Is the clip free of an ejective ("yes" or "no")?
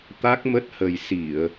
yes